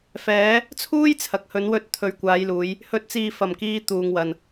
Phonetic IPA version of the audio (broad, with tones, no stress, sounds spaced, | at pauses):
f ɛː˨˧ | t͡sʰ uː˥ j t͡sʰ ɐ˨ k̚ h ɵ˨˧ n w ɵ˧ t̚ t̪ʰ ɵ˨ ɥ kʷ aː˨˧ j l uː˨˧ j | h ɵ˨ t̚ t͡s iː˨ f ɐ˨˩ m k iː˧ t̪ uː˨ ŋ w ɐ˨ n